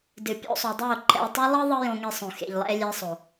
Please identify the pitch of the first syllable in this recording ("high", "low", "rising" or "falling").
low